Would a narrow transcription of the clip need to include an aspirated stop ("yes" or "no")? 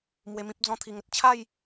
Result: yes